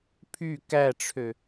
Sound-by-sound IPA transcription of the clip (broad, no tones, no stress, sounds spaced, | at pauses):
pʰ y k æ ʈ͡ʂʰ ø